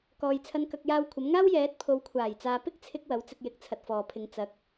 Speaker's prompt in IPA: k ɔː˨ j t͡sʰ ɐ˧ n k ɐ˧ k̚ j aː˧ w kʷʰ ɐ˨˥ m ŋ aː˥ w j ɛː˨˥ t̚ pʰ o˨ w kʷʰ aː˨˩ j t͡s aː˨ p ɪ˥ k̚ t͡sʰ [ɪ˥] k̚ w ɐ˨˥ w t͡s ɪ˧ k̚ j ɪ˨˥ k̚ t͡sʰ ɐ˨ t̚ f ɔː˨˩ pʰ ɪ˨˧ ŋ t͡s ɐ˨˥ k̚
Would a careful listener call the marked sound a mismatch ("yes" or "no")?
yes